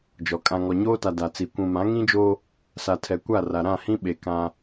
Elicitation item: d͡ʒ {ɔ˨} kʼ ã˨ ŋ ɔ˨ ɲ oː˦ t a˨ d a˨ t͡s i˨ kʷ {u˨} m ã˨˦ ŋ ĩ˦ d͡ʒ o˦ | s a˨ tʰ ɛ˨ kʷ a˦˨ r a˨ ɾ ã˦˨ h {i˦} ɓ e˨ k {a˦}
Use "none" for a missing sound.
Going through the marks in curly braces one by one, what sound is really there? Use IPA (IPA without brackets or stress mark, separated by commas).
ɔ˨, ũ˨, ĩ˦, ã˦